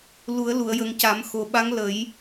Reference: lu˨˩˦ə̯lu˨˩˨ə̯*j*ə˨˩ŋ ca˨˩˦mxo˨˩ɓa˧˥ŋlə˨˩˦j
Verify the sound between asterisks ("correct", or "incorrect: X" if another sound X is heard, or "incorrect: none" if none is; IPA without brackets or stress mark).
correct